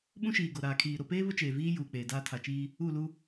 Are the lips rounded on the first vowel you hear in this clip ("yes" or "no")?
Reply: yes